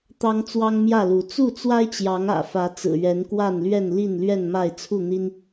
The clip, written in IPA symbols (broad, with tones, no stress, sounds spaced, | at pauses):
t̪ ɑ˦ ŋ t͡s w ɑ˦ ŋ m j ä˥˨ l u˨˦ t͡s u˥˨ t͡s w a˦ ɪ̯ t͡ɕ j ɑ˨˦ ŋ ä̰˨˩ f ä˨˦ t͡s ɹ̩˨˩ ɥ ɛ˨˦ n k w a˥˨ n l ɥ ɛ˥˨ n l i˥˨ n l ɥ ɛ˥˨ n m a˥˨ ɪ̯ t͡sʰ u˥˨ n̪ i˦ n